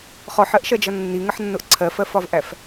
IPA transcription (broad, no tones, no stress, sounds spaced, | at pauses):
χ ɔ ħ ɜ ʔ ʃ ɜ d͡ʒ ʌ nː i ŋ ə ħ nː ʊ ʔ ǀʰ ɜ f ɜ f ɒ v ʔ æ f